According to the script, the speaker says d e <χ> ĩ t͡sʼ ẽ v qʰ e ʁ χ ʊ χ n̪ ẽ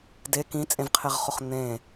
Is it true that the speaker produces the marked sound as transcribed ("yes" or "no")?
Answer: no